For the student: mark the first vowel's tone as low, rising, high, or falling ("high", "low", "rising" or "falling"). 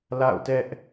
falling